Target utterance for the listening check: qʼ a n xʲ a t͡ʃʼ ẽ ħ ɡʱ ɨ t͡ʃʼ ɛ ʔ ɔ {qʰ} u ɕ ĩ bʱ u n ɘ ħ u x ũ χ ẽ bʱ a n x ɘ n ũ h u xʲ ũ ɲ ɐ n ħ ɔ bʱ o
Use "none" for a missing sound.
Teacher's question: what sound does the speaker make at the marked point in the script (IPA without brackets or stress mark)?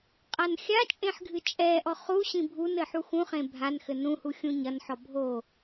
χ